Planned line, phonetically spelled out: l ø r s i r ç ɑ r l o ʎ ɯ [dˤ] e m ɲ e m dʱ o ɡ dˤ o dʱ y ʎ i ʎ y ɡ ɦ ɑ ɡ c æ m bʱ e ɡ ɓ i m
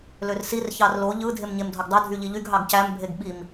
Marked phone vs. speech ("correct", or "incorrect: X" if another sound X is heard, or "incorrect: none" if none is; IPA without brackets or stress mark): incorrect: dʱ